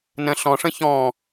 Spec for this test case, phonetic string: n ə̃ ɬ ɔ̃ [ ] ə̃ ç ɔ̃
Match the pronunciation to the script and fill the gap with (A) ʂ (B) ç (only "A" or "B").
A